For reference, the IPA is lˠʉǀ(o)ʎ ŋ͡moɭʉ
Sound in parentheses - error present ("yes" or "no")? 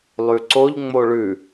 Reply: no